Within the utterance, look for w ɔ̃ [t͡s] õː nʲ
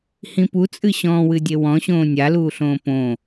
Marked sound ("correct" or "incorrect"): incorrect